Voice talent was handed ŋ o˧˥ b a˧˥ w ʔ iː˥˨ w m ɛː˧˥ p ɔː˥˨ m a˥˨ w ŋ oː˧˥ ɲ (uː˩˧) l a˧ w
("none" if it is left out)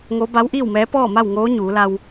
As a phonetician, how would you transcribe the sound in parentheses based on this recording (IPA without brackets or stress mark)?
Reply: uː˩˧